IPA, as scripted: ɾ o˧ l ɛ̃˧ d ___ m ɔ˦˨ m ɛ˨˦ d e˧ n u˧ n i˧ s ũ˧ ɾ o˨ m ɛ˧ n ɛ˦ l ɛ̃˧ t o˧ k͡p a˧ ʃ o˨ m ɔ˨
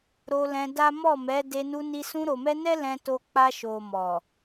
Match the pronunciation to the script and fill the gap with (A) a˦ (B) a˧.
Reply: A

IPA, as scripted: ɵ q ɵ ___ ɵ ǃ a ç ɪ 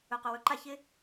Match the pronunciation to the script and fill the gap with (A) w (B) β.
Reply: A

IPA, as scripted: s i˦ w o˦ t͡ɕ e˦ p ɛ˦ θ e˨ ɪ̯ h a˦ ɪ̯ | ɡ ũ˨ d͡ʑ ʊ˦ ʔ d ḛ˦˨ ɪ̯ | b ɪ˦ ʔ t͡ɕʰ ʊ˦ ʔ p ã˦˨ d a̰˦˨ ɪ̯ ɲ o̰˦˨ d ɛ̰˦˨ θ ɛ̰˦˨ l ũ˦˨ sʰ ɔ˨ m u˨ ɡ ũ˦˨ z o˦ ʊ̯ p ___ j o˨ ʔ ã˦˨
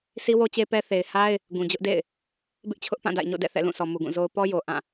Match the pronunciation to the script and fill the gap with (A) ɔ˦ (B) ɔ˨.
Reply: A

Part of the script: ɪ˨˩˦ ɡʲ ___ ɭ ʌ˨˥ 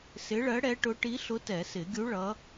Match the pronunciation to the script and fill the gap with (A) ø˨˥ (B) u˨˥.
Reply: B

